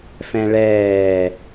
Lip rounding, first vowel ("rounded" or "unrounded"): unrounded